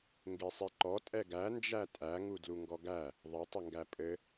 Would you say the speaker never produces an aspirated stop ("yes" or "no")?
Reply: yes